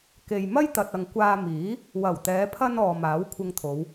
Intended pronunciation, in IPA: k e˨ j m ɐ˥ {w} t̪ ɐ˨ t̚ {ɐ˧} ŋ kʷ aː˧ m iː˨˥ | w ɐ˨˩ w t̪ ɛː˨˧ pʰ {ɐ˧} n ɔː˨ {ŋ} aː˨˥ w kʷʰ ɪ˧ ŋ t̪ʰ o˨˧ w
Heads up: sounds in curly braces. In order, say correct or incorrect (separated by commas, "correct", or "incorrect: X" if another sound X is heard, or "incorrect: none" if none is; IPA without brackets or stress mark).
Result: incorrect: j, incorrect: ɐ˨, correct, incorrect: m